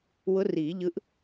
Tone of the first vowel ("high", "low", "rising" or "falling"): rising